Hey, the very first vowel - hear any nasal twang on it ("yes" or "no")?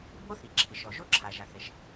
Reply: no